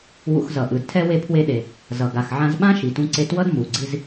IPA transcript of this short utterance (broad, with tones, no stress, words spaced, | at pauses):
wṵ˧xzʌ˩ʔɯ˩dtʰɛ˥ we˧pʰwe˧ɗe˩ | zʌ˩ɡa˩xʕã˧zɓã˥ ʃi˩tũ˧ǀe˧twʌ˥d mu˩ɡ͡ǀi˧z